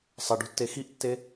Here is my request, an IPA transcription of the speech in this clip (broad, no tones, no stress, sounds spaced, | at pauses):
sˤ ɐ ɖ o̤ tː e x i ʔ tː e